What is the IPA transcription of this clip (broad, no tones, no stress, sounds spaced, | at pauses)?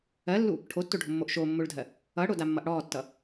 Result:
ɜ lː u | ʈʰ o tː o ɖʱ o mː o ʔ ʃ o mː o ɭ dʱ ɜ | ʌ ɽ o d a mː ʌ ʔ ɽ ɔ tː ʌ